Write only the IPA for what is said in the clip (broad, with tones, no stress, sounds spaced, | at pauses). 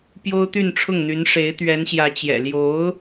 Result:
p j o˥ ʊ̯ t̪ y˥˧ n ʈ͡ʂʰ ʊ˥˩ ŋ n̪ y˧˥ n ʂ e˧˥ ɪ̯ t̪ ɥ ɛ˧˥ n ɕ j ä˧˥ t͡ɕ j ɛ̰˨˩ l j o˧˥ ʊ̯